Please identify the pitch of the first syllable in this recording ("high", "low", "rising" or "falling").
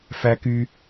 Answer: high